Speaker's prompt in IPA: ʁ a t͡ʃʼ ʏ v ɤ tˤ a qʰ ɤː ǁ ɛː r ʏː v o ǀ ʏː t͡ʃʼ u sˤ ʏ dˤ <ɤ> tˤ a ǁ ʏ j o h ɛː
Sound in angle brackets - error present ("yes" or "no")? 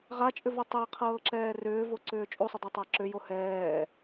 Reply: yes